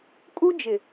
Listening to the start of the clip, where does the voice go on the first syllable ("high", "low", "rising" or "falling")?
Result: high